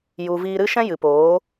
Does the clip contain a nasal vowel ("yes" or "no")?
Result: yes